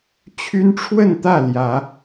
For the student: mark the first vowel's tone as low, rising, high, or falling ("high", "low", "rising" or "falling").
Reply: high